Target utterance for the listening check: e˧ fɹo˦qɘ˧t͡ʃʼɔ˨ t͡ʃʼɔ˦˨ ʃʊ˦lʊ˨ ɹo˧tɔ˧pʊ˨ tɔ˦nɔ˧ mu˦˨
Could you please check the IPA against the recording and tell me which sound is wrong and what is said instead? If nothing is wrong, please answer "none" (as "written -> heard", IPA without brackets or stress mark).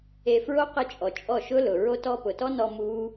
u˦˨ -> u˦